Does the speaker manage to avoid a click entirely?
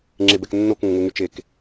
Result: no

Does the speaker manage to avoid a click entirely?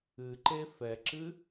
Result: no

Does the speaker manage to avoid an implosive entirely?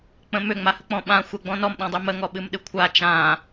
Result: no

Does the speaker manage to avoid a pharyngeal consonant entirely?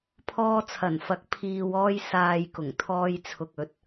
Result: yes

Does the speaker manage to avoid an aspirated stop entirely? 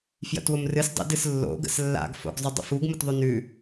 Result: yes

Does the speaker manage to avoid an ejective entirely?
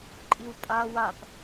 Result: no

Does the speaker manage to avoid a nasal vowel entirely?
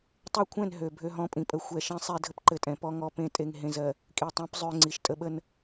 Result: no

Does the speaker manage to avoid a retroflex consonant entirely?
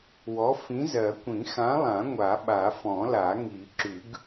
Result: yes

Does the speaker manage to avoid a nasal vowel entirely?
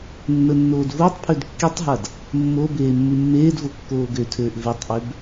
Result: yes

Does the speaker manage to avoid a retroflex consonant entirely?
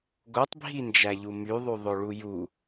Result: no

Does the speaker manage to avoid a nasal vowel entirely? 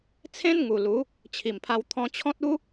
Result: no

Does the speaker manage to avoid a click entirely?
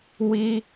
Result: yes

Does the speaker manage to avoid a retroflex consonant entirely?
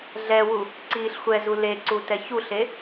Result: yes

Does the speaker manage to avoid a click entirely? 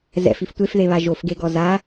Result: yes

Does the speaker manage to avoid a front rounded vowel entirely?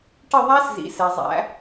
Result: yes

